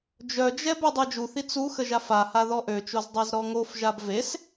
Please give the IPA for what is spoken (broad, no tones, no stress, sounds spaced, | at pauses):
d͡ʒ œ d͡ʒ ɛ b y dˤ e d͡ʒ u θ i t͡s u x ə ʒ a f a h a ð ɔ ʔ ø t͡ʃ o z dˤ a z ɾ ɔ ŋ o f ʒ a b v e s